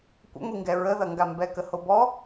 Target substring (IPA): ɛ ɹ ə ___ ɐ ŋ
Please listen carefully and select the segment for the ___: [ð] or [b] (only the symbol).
ð